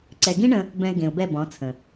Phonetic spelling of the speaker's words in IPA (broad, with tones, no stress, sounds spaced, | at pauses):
ǀ ɛ˨ ɡ ĩ˦ ɳ ə̃˧ | b ɛ̃˧ ɪ̯ ɡ ẽ˨ ʊ̯ b ɛ˦˨ b ɔ̃˨˦ t͡sʰ ə̃˨